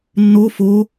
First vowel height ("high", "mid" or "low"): mid